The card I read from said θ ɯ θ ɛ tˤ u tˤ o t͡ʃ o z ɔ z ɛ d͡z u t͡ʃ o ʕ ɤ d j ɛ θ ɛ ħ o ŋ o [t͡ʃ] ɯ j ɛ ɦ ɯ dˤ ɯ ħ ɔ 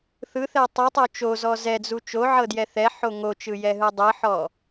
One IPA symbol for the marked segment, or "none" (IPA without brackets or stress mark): t͡ʃ